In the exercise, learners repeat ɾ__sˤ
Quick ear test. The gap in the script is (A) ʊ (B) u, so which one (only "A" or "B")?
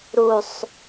B